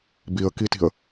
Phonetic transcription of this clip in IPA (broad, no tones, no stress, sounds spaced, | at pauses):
b i ə̯ k i t i̤ ə̯